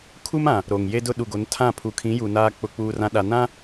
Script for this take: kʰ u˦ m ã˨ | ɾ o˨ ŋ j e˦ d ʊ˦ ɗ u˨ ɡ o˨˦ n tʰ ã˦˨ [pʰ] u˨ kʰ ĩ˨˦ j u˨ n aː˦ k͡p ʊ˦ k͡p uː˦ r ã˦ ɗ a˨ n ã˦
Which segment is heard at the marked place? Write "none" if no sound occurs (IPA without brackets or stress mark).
pʰ